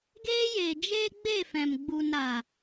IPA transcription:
ɡeː˧jeː˨ d͡ʒeː˦ ɡ͡be˦˨fɛ̃˨m ɡ͡bu˨n ɾa˨

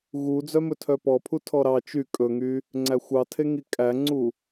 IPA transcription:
ɣud͡zœmɵ tʰœpɔpʰu tʰɔɾɑ t͡ʃy kʼɵŋy | ŋ͡ǀæxʷɑtʰeŋi kʼæŋ͡ǀu

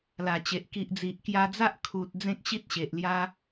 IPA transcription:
la˨˩t͡ɕe˨ʔ ki˨ʔd͡zi˨ʔ kja˧d͡za˦ʔ kʰu˨t̚ d͡zẽ˦k̚ɕi˦t̚ ɕe˨ʔlja˦

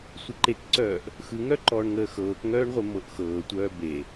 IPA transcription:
sʷɯǃekǀœːʔ | xɯŋœǃɔːɳ ŋəːxɤːkŋœːɳʁʷe mɤʔxɤːtʷœː be

